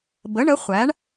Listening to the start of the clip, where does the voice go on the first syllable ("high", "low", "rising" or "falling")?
rising